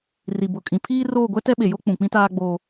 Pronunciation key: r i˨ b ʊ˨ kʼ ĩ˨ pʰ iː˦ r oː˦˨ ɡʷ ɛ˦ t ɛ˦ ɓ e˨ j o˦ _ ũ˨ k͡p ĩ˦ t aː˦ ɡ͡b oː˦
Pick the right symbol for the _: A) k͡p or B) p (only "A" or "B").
A